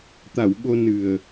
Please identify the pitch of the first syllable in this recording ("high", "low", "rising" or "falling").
low